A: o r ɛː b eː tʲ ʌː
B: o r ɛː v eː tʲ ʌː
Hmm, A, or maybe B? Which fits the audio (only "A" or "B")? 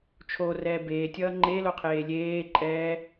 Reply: A